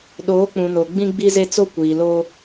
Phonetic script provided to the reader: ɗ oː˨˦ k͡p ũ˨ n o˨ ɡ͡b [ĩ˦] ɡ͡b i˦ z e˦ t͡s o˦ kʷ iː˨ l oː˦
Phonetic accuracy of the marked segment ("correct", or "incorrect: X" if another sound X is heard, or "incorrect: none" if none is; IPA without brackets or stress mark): correct